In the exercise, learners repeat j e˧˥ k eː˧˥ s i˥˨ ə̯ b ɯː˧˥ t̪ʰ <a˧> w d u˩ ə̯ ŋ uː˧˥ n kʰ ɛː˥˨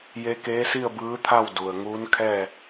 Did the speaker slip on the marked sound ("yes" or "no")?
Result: yes